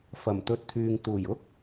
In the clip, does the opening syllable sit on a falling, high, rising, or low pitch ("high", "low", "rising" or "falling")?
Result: low